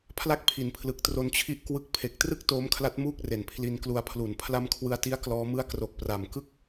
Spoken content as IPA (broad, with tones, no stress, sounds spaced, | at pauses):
pʰ l a˥˩ k̚ pʰ i˩˦ n pʰ l ɯ˨˩ k̚ t r o˧ n t͡ɕʰ i˦˥ ʔ k w ɯ˦˥ k̚ pʰ e˨˩ k̚ t r ɯ˥˩ k̚ t oː˦˥ m kʰ l a˦˥ t̚ m uː˥˩ k̚ r e˨˩ n pʰ l i˧ n k l u˧ a̯ pʰ l u˨˩ n pʰ l a˦˥ m kʰ w ɯ˧ a̯ t i˦˥ a̯ k l ɔː˦˥ m ɯ˥˩ a̯ k r o˨˩ k̚ p r a˨˩ m k ɯ˥˩ k̚